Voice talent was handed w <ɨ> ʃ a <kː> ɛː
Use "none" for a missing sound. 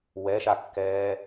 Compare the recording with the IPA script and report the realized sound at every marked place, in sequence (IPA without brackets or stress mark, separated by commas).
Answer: ɛ, kː